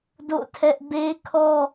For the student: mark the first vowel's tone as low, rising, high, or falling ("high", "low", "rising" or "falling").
falling